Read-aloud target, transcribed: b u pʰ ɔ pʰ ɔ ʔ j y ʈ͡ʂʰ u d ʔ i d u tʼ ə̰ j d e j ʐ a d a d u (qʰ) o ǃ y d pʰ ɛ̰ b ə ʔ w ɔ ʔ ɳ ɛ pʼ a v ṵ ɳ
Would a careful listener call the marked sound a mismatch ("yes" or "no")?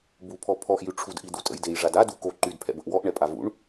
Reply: yes